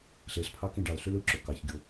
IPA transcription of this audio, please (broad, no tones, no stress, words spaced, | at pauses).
ɬeɬpʰɑkĩ ɖɑlɬyl ɯǁo kɑçɡʲo